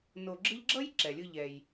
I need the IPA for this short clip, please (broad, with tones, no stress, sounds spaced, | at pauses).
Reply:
n o˧ ɡ͡ǁ ɯ˥ ʎ ɡ͡ǁ ʌ˥ j ǁ ɛ˩ lʲ ɯ˧ ʎ ɛ˧ j